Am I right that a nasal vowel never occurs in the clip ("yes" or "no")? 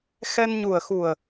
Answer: yes